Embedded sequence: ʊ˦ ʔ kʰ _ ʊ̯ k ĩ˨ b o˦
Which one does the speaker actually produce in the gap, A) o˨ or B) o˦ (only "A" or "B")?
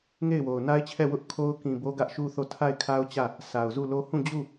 B